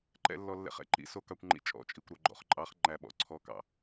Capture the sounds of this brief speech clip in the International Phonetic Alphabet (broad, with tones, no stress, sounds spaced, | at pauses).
ǃ ɛ̰˨ lː ɔ˨ lː ɛ̰˨ χ ɛ̰˦ ǃ ḭ˨˦ s o˨ k ɑ˨ kʷ ŋ͡ǃ ḭ˨ t͡ʃʼ ɔ̰˦˨ t͡ʃʼ i˨ kʷ ɾ o˨ ɡ͡ǃ ɔ̰˨ χ ǃʼ ɑ˨˦ χ ŋ͡ǃ æ˨ ɓ ɔ̰˨ ǀʰ ɔ˨˦ k ɑ̰˨